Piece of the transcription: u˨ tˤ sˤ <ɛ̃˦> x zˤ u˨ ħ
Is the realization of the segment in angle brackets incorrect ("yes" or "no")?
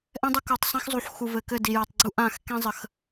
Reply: no